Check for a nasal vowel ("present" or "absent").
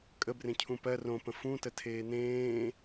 present